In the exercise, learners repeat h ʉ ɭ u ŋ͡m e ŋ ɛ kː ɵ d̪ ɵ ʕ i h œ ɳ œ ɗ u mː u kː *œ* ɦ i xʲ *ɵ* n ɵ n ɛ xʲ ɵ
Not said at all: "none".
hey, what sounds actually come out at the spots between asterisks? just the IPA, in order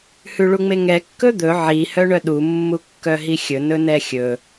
œ, ɵ

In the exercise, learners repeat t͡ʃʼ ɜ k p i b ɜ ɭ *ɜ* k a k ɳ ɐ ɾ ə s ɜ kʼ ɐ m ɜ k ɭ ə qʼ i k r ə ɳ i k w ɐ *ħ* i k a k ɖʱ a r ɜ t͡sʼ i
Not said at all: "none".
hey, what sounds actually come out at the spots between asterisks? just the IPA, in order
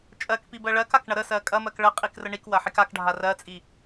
ɜ, ħ

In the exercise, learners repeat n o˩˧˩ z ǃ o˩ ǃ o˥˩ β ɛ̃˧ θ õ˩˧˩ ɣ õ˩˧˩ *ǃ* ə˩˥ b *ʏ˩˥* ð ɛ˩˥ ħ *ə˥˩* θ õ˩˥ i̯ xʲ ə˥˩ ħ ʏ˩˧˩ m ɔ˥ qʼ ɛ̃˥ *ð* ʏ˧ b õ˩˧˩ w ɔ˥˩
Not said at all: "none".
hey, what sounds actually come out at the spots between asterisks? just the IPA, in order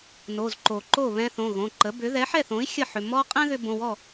ǃ, ʏ˩˥, ɛ˥˩, ð

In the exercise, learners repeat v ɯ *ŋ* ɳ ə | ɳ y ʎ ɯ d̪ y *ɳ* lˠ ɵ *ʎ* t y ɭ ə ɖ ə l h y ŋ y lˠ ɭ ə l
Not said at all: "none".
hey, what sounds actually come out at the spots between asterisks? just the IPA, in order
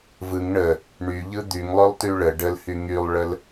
ŋ, ŋ, lˠ

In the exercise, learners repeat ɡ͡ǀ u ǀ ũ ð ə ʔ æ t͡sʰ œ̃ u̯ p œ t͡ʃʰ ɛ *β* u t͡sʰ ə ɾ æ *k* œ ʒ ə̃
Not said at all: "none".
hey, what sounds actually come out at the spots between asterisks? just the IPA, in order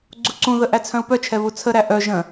β, ʔ

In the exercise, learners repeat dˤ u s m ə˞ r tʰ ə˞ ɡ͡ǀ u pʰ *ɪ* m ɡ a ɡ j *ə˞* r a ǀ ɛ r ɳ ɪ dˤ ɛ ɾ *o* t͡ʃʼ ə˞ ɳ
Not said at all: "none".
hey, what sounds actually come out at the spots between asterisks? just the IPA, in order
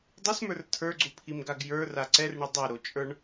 i, ə˞, o

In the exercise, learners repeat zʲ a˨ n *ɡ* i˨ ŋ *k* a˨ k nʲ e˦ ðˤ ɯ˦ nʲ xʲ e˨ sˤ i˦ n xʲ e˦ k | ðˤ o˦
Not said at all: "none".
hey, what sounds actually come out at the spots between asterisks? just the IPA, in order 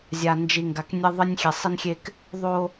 d͡ʒ, ɡ

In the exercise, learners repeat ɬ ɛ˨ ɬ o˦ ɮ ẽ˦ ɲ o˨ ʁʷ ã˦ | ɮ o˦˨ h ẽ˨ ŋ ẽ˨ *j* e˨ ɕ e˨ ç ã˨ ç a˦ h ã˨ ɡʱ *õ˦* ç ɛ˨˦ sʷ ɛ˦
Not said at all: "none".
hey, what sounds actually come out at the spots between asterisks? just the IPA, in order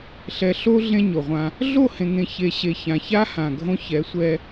ç, õ˦

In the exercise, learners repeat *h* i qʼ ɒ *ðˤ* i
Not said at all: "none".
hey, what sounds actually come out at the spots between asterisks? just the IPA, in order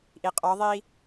ʔ, ðˤ

